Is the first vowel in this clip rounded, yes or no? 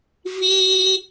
no